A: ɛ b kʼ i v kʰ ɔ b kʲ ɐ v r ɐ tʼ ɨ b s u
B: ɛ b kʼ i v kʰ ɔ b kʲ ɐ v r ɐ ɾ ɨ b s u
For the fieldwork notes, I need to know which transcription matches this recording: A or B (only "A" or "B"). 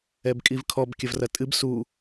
A